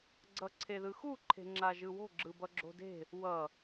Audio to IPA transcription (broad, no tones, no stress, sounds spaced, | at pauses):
ɡ͡ǀ ʌ ǀʰ e ð ɯ x u ǃʰ e̤ ŋ͡ǁ a ʒ ɯ w o̤ ɡ͡ǁ ɯ b ʌ ɡ͡ǁ o̤ d e̤ | w ʌ